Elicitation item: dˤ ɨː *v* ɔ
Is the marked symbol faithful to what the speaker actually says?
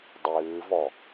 yes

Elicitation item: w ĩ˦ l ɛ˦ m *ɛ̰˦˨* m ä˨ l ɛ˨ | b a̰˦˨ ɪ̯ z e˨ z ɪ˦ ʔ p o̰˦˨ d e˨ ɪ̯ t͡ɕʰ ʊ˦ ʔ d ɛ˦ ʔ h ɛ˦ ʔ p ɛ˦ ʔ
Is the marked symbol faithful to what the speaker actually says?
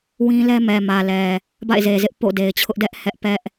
no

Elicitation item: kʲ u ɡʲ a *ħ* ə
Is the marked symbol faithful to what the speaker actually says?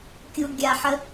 yes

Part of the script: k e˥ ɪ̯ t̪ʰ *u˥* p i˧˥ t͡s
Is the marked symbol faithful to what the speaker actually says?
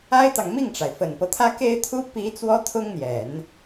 yes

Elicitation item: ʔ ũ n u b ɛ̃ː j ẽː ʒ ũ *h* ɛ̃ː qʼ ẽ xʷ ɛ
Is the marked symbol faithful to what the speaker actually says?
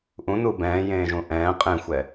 no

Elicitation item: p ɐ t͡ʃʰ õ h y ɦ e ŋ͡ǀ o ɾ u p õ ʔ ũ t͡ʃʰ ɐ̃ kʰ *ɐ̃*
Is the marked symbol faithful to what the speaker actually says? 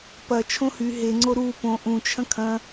yes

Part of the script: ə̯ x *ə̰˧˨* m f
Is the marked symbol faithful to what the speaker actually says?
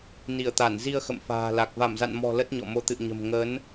yes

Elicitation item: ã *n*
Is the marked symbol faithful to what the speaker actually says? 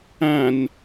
yes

